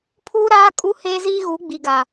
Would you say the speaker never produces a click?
yes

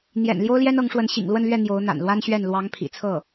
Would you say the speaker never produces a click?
yes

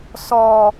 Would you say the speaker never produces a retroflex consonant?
yes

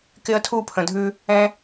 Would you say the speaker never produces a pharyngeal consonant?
yes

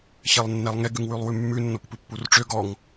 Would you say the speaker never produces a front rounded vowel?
no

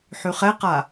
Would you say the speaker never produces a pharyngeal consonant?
no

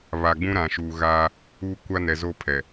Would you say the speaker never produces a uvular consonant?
yes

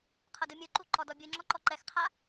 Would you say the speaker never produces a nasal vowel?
yes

